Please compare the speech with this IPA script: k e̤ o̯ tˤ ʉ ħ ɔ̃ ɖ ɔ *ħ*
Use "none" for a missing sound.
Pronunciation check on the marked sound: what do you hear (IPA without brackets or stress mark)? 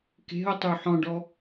none